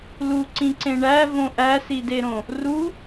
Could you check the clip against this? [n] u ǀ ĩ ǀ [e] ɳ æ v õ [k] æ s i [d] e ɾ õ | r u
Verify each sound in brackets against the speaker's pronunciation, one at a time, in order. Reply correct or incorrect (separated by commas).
incorrect, incorrect, incorrect, correct